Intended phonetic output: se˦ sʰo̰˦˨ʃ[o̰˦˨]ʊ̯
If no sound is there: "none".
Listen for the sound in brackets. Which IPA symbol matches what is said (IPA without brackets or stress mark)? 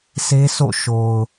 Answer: o˨